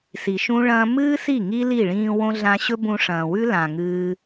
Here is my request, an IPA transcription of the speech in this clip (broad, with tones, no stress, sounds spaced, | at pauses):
s i˨ ʃ ũ˦ ɭ ɐ̃ː˦ m ɨː˦ s i˦˨ ŋ i˦ l i˦˨ ɭ ĩː˧ w õ˦ ɮ ã˧ ɕ ɵ˦ b ũ˧ ʂ ɐ̃ː˨ w ʉ˦ l ã˨ ŋ ɨː˦